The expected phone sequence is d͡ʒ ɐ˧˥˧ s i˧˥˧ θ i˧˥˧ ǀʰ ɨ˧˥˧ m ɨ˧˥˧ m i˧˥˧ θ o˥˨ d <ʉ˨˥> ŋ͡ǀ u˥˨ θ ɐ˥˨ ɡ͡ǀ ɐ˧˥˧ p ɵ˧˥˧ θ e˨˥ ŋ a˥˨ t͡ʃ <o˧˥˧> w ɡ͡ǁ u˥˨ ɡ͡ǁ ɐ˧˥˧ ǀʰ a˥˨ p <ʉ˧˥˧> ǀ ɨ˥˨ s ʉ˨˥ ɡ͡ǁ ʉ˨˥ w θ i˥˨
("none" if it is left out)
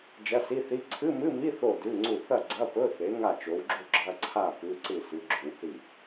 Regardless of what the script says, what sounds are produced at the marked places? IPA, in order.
ʉ˧˥˧, o˨˥, ʉ˧˥˧

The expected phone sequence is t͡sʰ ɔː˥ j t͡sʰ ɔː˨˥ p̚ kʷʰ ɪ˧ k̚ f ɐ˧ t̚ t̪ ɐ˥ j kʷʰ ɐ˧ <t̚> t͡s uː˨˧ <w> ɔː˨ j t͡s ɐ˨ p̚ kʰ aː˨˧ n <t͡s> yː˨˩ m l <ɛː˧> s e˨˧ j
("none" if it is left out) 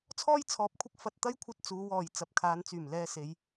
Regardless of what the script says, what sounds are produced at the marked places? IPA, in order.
t̚, w, t͡s, ɛː˧

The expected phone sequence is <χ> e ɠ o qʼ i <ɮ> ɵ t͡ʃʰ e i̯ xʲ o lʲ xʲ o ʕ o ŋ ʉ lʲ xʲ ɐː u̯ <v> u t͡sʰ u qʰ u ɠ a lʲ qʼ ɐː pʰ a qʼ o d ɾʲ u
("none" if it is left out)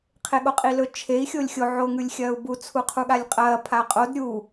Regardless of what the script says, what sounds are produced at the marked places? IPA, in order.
qʰ, l, b

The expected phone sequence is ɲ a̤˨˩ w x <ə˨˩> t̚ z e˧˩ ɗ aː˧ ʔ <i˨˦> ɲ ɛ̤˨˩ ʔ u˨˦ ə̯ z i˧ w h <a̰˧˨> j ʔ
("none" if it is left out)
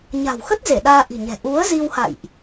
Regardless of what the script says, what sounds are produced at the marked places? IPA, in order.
ə˦˥, i̤˨˩, a̰˧˨

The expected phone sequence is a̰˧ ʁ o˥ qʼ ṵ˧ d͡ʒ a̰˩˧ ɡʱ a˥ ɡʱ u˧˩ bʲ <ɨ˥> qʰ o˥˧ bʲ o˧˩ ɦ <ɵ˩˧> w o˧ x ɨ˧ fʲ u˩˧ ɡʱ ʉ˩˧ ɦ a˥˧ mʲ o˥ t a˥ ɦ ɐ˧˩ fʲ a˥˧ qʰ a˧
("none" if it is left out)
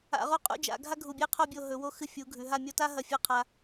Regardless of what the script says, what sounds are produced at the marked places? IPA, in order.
e˥, ɵ˩˧

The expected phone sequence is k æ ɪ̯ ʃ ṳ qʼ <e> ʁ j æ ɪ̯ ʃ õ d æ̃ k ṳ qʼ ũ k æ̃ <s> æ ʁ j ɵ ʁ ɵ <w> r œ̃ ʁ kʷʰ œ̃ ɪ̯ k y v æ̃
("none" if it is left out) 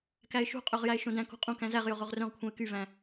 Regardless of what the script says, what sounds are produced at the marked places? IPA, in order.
ø, z, ʁ

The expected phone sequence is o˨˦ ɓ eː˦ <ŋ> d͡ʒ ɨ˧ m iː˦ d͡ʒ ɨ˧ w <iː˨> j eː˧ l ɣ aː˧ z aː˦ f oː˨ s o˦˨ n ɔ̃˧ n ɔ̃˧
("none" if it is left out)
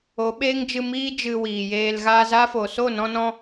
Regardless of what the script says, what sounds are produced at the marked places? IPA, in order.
ŋ, iː˨

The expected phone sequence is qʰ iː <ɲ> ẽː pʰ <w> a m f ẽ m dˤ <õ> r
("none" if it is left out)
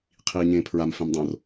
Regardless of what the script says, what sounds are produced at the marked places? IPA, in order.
ɲ, ɹ, õ

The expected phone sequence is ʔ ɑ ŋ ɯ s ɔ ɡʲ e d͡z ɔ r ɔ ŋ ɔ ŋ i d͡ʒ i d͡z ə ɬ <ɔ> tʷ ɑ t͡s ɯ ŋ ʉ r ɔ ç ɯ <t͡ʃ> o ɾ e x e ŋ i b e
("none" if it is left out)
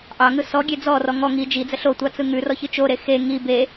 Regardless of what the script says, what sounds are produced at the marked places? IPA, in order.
o, t͡ʃ

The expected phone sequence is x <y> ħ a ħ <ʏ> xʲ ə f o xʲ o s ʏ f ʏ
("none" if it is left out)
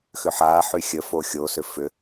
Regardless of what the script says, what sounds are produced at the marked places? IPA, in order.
ʏ, y

